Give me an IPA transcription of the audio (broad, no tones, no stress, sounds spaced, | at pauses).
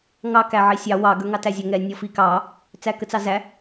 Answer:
ŋ ɑ k æ ʕ i sʲ ɑ w ɑ ɡ ə˞ ŋ ɑ t æ zʲ ə ŋ ɛ nʲ ɔ f i k ɑ | t͡s æ k ə t͡s ɑ z æ